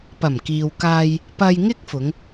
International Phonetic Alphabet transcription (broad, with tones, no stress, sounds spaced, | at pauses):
p ɐ˨˩ m k iː˨ w k aː˧ j | p ɐ˧ j ŋ ɪ˥ k̚ f ʊ˨˧ ŋ